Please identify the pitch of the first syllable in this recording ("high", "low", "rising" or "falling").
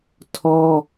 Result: high